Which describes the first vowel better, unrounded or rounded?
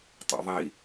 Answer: unrounded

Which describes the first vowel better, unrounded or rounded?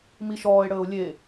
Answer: unrounded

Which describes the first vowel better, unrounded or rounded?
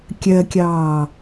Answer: unrounded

